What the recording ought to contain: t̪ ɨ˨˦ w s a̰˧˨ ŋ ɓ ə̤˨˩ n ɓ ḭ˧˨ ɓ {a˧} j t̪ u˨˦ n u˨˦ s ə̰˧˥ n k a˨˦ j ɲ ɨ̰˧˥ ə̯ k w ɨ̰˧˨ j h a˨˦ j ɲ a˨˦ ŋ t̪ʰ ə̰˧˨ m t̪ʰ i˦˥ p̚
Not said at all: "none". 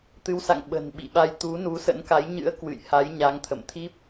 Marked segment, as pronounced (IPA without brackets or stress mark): a˧